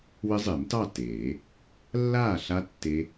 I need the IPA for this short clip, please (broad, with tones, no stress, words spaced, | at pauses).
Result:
wɘ˦˥zˤe˨˩˦mtɑ˥˨ teː˨˩˦ | lːaː˥˨ɬa˦˥ tːe˦˥